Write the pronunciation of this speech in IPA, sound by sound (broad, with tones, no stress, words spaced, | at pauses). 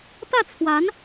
t̪ä˥˩t͡sʰwa˧˥n